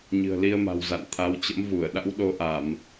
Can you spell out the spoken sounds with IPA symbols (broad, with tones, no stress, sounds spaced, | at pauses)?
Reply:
ɲ ɨ̤˨˩ ə̯ l i˧ ə̯ m a̤˨˩ w z a̰˧˨ n t̪ʰ a˨˦ w t͡ɕ ə̰˧˥ m v u˧˩ ə̯ ɗ a̰˧˥ w ɗ o˨˦ ʔ a˧˩˨ m